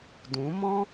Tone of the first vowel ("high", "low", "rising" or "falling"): rising